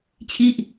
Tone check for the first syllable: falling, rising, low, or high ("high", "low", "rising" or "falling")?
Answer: falling